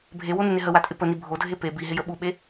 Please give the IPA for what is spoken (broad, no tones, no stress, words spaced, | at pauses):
bʱewonɪnɪ ɦəwatʼɪ pəni bʱodʱe pe biɦɪjə ɓuɓe